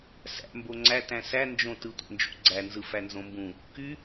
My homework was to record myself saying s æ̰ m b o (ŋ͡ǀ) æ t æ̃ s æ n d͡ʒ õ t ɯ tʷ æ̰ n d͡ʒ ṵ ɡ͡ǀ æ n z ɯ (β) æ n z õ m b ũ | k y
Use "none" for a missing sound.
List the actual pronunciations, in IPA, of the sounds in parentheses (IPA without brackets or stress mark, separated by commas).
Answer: ŋ͡ǀ, f